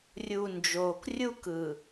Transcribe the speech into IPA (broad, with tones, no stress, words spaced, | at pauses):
rʲu˨ nd͡ʒoː˨krʲu˦kɯ˨